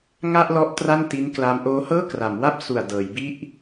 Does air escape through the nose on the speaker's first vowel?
no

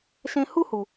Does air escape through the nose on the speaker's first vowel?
yes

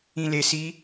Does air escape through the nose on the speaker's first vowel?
yes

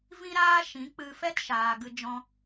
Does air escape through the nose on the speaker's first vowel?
yes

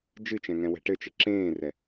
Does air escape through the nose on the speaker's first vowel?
no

